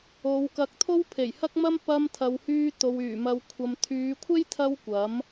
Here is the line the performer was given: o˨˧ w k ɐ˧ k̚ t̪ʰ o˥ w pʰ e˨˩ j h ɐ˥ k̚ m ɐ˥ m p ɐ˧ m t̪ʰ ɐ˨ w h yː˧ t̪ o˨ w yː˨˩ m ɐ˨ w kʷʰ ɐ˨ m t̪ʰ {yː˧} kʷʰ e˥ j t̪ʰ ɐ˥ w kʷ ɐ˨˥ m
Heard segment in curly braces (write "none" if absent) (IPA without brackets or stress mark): yː˨˧